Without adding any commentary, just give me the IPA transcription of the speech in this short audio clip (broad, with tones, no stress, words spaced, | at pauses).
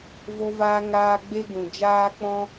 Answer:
vo˧vaː˧ ŋaː˦ ɡ͡be˦ɡũ˨d͡ʒaː˦ k͡pɔ̃˦